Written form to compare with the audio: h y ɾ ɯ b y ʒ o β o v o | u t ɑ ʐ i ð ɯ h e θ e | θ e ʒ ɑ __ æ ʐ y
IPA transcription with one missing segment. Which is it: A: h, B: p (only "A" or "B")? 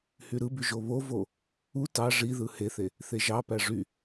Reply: B